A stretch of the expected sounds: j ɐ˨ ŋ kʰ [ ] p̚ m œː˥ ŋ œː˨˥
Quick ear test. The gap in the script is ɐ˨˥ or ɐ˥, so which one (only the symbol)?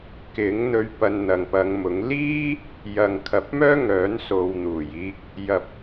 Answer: ɐ˨˥